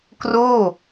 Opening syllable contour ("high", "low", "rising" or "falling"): falling